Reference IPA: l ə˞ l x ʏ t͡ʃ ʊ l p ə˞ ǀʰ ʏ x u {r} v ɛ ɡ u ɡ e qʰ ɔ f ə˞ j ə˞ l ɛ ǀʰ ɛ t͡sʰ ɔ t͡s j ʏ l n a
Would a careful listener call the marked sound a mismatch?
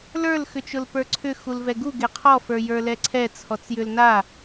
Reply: yes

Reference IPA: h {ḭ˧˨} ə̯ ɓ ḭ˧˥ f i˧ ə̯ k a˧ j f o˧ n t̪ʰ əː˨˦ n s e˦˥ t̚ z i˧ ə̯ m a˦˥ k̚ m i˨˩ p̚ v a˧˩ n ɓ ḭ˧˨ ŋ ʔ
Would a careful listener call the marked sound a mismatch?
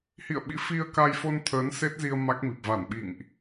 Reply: no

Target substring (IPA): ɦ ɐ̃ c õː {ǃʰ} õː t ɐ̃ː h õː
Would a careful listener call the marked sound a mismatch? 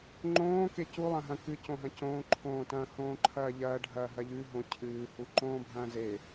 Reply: no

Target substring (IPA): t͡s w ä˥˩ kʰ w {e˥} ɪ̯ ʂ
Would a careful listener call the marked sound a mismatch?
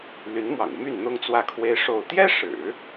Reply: no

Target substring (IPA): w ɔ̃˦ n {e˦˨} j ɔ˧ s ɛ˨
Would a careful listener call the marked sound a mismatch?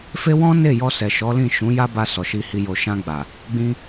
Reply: no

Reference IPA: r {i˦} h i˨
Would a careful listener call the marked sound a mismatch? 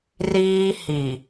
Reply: yes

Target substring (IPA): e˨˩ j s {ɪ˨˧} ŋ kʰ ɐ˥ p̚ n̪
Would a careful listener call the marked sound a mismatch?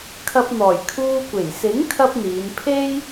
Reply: yes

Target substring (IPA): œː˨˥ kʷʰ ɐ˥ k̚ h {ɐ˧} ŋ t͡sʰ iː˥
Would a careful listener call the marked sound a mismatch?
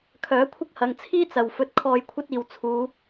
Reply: yes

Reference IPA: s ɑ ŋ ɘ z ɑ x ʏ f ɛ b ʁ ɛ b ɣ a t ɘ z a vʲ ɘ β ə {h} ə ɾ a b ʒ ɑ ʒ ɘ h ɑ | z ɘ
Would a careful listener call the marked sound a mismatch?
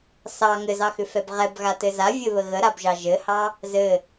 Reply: yes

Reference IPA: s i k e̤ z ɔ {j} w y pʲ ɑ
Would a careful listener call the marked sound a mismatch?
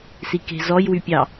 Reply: no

